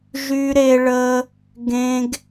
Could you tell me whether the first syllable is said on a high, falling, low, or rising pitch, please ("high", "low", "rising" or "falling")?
high